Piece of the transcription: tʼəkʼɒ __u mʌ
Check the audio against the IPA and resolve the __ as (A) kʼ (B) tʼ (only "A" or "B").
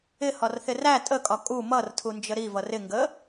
A